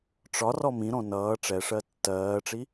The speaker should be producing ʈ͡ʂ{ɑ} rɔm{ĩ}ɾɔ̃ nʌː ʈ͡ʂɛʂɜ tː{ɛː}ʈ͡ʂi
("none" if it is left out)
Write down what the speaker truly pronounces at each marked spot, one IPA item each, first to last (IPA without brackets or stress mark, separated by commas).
ɒ, ĩ, ɜː